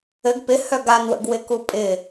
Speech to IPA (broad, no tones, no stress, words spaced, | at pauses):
ɘɡ pɪhœ ɡanwə̰ɡwɪku pʼɪ